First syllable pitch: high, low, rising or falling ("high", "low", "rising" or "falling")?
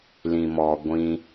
low